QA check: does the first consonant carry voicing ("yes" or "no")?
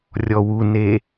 yes